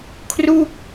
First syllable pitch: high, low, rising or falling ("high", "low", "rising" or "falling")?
falling